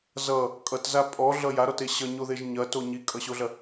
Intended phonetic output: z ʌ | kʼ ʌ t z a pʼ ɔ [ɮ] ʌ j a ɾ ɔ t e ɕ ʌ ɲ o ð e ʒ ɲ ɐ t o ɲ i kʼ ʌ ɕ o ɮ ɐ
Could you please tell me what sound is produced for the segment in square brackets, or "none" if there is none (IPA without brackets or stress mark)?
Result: ɮ